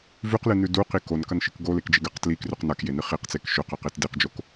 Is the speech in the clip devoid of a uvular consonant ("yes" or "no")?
no